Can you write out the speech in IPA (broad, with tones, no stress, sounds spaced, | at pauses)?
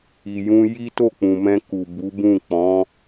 i˨ j ũ˧ j i˦ t o˦˨ k͡p ũ˨ m ɛ̃˧ k u˨ b u˨˦ b ũ˦˨ k͡p ɔ̃˨˦